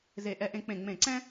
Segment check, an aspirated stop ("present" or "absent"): absent